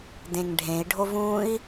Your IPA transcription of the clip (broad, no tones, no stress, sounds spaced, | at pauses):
d ẽ ŋ ɖʱ ẽ i̯ ɖʱ o v ũ i̯